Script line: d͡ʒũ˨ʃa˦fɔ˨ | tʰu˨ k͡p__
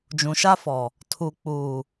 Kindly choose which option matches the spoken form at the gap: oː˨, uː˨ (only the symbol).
uː˨